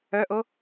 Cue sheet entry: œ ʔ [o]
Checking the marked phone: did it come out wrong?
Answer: no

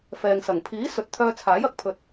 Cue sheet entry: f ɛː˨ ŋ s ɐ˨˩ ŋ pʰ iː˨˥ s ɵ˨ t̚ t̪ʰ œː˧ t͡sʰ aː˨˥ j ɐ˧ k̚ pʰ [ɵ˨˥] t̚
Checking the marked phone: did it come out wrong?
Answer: yes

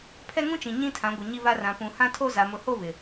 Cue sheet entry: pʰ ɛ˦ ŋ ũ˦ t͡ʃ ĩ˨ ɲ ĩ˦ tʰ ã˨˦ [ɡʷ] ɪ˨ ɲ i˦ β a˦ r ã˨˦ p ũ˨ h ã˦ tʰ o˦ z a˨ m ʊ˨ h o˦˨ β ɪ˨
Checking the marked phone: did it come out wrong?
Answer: no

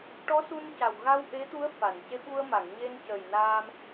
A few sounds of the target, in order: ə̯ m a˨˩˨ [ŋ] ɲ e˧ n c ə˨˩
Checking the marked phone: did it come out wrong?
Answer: no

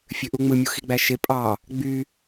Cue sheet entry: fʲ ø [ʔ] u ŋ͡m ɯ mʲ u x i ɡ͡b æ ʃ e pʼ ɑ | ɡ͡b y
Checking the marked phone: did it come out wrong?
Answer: no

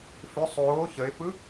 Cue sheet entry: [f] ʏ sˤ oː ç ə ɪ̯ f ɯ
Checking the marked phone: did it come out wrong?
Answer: no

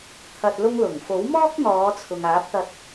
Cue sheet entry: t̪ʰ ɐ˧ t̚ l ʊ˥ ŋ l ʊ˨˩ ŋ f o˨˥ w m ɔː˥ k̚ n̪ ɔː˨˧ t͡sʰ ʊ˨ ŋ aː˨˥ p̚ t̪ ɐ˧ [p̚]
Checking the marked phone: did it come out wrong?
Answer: yes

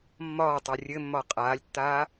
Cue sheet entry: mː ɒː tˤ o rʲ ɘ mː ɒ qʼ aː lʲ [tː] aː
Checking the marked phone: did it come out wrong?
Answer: no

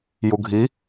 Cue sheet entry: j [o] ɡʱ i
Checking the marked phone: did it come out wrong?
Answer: yes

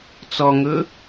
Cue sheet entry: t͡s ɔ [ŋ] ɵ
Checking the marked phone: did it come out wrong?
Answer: no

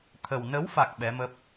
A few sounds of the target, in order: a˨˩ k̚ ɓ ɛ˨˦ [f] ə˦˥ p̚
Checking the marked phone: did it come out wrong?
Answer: yes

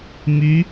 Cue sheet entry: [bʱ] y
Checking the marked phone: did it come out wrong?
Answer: yes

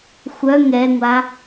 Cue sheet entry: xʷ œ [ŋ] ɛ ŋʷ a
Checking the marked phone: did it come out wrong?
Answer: no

